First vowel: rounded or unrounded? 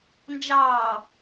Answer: unrounded